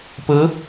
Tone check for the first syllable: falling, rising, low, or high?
rising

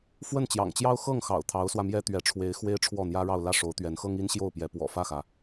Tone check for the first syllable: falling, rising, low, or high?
falling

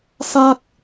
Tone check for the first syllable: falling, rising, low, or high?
high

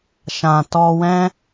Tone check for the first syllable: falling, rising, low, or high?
low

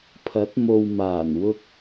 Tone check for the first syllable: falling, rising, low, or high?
rising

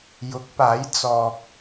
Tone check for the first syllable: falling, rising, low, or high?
rising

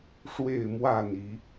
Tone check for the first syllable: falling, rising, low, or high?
falling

